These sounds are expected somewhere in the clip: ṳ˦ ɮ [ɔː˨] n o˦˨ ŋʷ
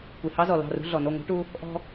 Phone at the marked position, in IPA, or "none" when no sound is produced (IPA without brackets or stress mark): ɔ˨